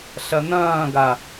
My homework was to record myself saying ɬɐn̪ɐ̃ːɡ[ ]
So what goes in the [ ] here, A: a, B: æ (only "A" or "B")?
A